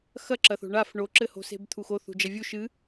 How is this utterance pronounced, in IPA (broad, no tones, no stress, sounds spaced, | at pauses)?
x ɐ ǁ ɐ θ o̤ ɳ a f ɳ o ǁ ɘ h o̤ s e̤ b t̪ʰ u x o θ ṳ d͡ʒ ɐ vʲ u ʃ ɨ